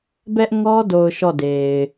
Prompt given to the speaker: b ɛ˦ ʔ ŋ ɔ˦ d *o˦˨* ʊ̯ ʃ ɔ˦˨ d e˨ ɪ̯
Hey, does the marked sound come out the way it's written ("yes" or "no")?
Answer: no